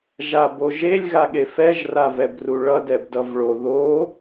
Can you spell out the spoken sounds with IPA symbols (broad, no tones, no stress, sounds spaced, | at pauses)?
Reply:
ʒ a b o ʒ e lʲ ɣ a ɠ e f ɛ ʒ r a v ɛ b r u ɭ ʌ d ɛ b d ʌ v ɭ o ð o